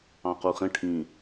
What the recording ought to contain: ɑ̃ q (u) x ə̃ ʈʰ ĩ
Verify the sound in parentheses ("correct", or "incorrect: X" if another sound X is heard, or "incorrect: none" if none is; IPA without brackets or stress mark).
correct